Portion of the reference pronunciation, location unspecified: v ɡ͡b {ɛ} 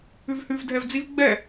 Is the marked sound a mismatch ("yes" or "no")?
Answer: no